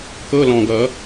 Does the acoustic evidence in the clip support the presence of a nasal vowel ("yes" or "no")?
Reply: yes